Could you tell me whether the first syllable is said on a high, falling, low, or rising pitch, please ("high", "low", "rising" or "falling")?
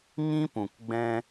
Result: high